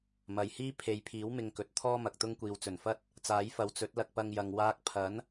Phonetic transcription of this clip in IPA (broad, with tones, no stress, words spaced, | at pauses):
mɐ˨jhiː˥ pʰe˨˧jpʰiː˨˥w mɪ˧ŋkɵ˨˥t̚ t̪ʰɔː˥mɐ˨k̚t̪ʊ˥ŋ kʷiː˨wt͡sɵ˨˩nfɐ˥t̚ | t͡saː˨˥jfɐ˨˧w t͡sɵ˨˥t̚lɐ˧k̚pɐ˧ŋjɐ˨ŋ waː˧k̚pʰɐ˨˥n